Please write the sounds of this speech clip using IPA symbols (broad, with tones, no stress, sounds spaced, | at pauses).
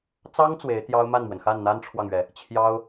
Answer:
t͡s ɑ˥ ŋ t͡s w e˧˥ ɪ̯ t̪ j ɑ˥ ʊ̯ m a˥˩ n m w ə˩ n x a˥˩ n n̪ a˥ n ʈ͡ʂʰ w ɑ˨ ŋ ɥ ɛ˩ | t͡ɕʰ j ɑ˥ ʊ̯